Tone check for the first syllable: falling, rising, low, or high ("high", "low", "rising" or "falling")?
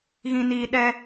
low